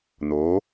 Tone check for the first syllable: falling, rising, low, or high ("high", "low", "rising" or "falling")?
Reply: rising